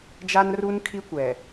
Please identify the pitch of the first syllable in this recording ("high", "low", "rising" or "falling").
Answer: high